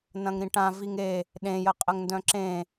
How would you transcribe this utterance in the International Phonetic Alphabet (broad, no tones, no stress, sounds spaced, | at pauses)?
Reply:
n ɐ̃ ŋ ɾ ĩ ʈ ã v i ŋ e | ɗ ẽ j ə qʼ ə ŋ n d œ̃ ǁ ẽ